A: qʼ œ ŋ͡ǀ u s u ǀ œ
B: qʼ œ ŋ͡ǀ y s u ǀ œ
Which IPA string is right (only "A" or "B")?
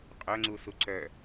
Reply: A